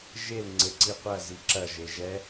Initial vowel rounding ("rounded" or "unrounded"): unrounded